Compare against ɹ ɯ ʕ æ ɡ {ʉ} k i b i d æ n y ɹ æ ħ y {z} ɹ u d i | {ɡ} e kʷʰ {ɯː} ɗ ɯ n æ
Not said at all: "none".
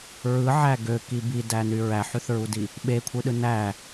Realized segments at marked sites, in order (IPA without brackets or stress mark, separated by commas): ø, θ, ɓ, ɯ